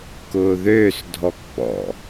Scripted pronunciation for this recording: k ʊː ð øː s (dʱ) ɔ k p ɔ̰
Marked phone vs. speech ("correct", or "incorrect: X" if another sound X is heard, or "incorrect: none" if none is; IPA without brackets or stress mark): correct